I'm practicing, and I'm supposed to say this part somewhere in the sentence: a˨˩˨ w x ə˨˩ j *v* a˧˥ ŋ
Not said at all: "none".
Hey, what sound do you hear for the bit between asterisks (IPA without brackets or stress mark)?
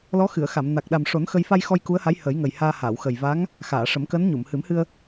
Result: v